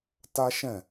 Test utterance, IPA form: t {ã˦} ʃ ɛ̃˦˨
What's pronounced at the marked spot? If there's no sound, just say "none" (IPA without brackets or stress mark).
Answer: a˦